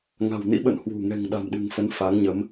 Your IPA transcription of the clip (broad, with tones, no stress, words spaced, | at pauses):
ŋa̤˨˩wnḭ˧˥ɓə̰˧˨n hwṳ˨˩ ŋɛ̤˨˩ŋɗa̤˨˩m ɗɨ̤˨˩ŋfə˨˦n fa˨˦ŋɲə˨˦m